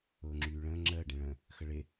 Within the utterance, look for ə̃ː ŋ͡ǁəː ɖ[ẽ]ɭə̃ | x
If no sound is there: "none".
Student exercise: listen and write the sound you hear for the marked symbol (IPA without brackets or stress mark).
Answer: ẽ